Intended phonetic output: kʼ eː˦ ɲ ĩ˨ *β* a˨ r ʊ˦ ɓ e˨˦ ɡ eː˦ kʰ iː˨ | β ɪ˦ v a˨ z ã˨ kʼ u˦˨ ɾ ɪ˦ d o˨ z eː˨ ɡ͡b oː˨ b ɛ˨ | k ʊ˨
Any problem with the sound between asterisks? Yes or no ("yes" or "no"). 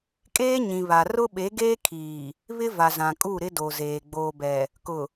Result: no